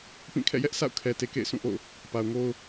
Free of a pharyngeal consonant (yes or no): yes